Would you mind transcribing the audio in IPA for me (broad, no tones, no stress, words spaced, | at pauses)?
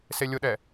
selʲʊɗɛ